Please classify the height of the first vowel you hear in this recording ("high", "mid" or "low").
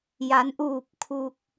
low